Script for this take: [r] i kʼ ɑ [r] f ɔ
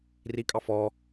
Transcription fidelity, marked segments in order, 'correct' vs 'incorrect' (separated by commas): correct, incorrect